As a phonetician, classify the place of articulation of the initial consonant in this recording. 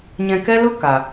palatal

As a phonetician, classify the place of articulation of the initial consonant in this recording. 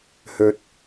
glottal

